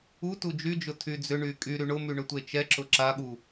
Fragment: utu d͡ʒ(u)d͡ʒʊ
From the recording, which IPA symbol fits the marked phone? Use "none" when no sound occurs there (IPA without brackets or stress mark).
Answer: y